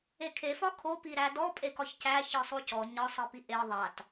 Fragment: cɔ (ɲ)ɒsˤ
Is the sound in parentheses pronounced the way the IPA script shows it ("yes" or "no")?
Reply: yes